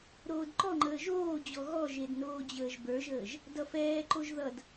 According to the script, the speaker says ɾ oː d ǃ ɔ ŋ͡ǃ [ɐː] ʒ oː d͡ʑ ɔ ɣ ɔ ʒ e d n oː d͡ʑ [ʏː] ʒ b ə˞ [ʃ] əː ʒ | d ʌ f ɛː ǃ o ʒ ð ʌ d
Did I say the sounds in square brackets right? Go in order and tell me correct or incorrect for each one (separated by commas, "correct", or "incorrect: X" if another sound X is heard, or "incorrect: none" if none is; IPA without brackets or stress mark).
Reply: incorrect: əː, incorrect: əː, incorrect: ʒ